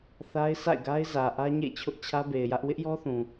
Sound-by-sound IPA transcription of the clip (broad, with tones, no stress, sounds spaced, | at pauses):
θ a˦ ɪ̯ s a̰˦˨ ɪ̯ ɡ a˦ ɪ̯ z ä˨ ʔ ä˦ ɲ ḛ˦˨ t͡ɕʰ ʊ˦ ʔ t͡ɕʰ ä˦ b e˨ ɪ̯ j ä˦ ʔ w ɪ˦ ʔ j ɔ˦ θ ũ˨